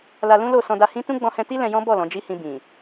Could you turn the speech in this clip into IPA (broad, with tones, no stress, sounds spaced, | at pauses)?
l a˧ l ũ˦ l o˦˨ s ɔ̃˧ d a˧ h ĩ˦ t ũ˦ ɡ͡b ɔ̃˧ h ɛ̃˧ t i˦ l ɛ̃˧ j ɔ̃˦ b ɔ˦˨ l ɔ̃˨˦ d͡ʒ i˦ h ĩ˧ b ĩ˨